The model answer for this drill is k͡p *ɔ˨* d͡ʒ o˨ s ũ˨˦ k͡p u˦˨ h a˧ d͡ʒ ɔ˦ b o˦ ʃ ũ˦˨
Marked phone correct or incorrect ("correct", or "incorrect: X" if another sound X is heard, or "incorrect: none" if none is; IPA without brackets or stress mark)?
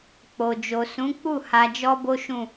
incorrect: o˨